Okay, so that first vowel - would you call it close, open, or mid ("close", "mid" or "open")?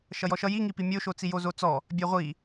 mid